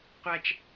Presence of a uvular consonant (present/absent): present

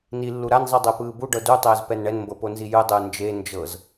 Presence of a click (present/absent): absent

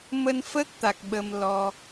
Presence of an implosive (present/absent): present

